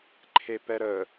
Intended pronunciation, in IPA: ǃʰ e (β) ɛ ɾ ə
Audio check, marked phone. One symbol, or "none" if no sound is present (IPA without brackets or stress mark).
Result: p